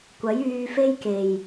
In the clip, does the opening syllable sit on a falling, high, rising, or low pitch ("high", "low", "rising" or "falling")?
rising